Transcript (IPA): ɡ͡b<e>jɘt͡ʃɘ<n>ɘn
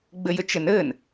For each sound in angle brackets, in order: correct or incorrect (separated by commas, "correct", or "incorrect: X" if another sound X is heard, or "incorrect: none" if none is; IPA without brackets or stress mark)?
incorrect: ɘ, correct